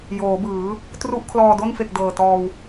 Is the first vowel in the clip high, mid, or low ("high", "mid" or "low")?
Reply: mid